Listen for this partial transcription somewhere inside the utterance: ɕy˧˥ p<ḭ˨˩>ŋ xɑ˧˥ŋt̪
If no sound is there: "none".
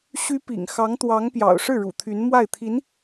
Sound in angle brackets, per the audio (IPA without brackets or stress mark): ḭ˨˩